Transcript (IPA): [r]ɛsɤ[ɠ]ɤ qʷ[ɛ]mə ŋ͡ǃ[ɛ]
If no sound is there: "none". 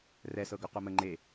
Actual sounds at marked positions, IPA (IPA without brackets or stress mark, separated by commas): r, ɡ, œ, e